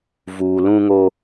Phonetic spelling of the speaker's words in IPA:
v uː˨ l ũ˦ ŋ o˦

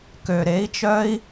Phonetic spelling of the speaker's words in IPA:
k ø˨ ɾ e˨˦ i̯ t͡ʃ œ˦ i̯

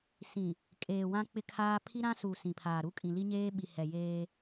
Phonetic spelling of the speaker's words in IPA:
s ĩ˨ | kʼ eː˨ w ã˦ k͡p ɪ˦ kʰ aː˦ pʰ i˦ ɾ ã˦ s u˨ s ĩ˨ pʰ aː˨ ɾ u˦ kʼ ĩ˨ l i˦ ɲ eː˦ ɓ i˨ h ɛ˨ j eː˦

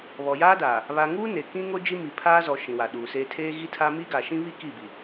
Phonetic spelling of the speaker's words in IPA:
β ɔ˨ j aː˦ d aː˨ | β a˨ ŋ uː˦ n e˨ k ĩ˦ ŋ o˦ d͡ʒ i˦ m i˨ pʰ aː˦ z ɔ˨ ʃ ĩ˨ w a˨ ɗ uː˨ s eː˦ tʰ eː˦ ɣ i˦ tʰ a˦ m iː˦ ɡ a˨ ʃ ĩ˦ β i˦ k i˦˨ b i˨

